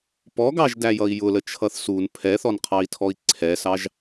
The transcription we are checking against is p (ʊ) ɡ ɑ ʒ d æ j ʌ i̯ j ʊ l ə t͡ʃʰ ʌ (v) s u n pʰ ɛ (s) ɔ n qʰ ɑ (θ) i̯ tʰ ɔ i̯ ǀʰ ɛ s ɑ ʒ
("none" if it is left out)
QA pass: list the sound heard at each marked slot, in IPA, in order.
ɔ, θ, θ, none

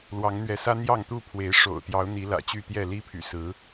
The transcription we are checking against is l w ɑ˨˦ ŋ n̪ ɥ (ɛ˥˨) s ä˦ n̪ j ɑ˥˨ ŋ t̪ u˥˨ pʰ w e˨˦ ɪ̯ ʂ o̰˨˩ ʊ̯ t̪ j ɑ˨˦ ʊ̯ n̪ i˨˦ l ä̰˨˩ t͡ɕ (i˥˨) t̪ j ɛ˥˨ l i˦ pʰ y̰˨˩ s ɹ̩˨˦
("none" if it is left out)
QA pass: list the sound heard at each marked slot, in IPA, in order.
ɛ˨˦, y˥˨

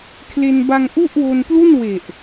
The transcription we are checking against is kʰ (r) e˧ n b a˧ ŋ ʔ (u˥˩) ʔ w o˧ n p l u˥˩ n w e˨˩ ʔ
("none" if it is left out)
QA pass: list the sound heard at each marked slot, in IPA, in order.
l, u˥˩

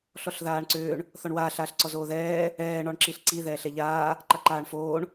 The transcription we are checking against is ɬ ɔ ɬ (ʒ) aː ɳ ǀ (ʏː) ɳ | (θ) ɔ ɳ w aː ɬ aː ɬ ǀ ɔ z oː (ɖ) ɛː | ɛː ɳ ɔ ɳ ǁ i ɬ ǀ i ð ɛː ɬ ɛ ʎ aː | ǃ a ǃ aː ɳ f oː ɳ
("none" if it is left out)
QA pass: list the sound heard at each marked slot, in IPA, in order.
ð, ʏː, θ, ð

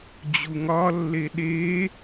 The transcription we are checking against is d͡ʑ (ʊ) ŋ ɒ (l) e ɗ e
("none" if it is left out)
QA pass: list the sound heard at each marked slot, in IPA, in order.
u, lː

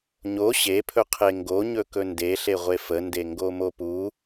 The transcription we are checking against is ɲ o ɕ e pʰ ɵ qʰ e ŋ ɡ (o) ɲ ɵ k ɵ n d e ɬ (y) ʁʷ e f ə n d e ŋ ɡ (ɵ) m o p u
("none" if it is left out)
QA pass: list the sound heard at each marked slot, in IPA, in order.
o, e, o

